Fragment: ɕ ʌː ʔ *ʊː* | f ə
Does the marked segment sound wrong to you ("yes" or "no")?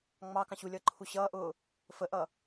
no